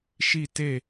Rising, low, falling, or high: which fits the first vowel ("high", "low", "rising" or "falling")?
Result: falling